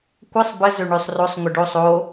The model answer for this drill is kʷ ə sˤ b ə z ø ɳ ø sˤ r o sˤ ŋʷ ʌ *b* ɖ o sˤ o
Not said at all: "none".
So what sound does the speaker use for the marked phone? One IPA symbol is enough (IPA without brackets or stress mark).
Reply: none